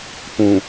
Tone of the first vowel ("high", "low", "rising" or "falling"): low